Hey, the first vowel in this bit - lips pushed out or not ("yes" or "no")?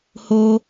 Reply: yes